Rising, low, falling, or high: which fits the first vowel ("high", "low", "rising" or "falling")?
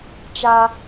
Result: high